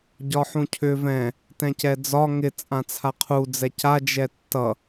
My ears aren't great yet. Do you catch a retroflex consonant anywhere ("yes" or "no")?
no